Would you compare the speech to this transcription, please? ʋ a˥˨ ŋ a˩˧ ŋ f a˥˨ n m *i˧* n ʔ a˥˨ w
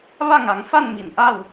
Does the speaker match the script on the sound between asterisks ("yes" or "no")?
no